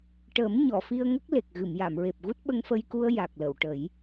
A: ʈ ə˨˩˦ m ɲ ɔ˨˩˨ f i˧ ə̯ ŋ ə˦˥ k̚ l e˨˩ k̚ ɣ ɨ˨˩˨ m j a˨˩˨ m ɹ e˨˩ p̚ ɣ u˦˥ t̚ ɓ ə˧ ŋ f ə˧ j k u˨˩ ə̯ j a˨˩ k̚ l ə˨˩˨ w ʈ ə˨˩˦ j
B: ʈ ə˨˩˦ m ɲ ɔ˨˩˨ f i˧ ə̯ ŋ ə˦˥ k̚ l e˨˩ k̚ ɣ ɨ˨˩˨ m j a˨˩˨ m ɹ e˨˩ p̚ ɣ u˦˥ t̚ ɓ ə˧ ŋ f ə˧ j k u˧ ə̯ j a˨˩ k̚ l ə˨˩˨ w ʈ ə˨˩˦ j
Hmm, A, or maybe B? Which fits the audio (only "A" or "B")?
B